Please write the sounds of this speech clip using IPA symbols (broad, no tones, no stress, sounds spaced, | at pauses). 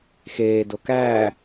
x eː d o k æː